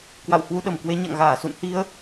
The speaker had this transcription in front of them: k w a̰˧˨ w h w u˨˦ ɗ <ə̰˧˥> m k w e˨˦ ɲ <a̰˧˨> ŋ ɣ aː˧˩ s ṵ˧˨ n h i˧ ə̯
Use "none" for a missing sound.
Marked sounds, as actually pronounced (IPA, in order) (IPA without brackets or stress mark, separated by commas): ə˧˩, a̰˧˨